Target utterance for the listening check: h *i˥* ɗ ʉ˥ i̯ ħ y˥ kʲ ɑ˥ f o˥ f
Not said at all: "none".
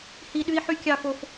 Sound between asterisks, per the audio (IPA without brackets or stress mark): i˥